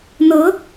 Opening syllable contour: rising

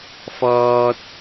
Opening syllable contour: high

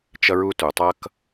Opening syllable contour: high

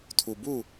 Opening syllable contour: low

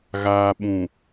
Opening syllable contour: low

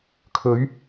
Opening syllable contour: rising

